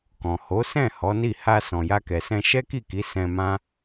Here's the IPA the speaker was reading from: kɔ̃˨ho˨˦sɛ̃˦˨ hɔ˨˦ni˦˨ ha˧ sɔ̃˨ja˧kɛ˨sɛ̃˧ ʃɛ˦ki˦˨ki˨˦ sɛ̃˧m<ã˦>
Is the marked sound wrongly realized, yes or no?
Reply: no